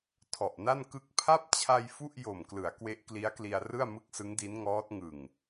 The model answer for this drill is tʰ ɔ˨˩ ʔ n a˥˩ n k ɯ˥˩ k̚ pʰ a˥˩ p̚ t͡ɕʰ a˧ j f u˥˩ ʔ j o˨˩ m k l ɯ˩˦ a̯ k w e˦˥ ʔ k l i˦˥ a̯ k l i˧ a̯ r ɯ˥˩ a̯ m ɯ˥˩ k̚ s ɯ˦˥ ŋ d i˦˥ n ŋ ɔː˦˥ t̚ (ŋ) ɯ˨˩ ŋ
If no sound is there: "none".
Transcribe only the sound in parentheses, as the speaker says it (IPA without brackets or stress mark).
ŋ